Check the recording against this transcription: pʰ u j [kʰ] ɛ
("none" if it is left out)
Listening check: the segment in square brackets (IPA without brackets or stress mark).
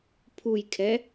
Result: kʰ